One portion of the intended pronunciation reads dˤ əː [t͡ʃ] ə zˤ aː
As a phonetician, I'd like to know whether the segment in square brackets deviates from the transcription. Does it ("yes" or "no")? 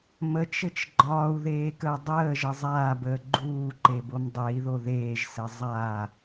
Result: yes